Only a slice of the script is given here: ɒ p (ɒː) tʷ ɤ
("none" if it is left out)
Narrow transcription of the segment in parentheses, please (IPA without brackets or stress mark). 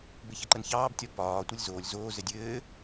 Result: ɒː